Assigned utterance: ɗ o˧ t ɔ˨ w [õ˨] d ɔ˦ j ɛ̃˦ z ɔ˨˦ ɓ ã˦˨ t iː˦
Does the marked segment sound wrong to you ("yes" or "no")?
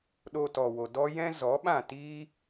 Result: yes